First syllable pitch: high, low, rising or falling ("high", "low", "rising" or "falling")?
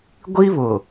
high